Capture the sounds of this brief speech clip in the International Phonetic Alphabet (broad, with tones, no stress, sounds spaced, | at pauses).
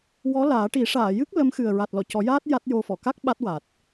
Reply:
w ɔ˧˥ l aː˨˩˦ ʈ i˨˩˦ ʂ aː˨˩˨ j ɨ˦˥ k̚ l ə˧˥ m x ɨ˨˩ ə̯ ɹ a˨˩ t̚ l ɔ˨˩˨ c ɔ˨˩˦ j aː˦˥ t̚ j a˦˥ t̚ j o˧ f ɔ˨˩˨ k a˦˥ k̚ ɓ a˦˥ t̚ w a˨˩ t̚